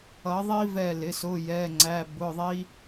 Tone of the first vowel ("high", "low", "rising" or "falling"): rising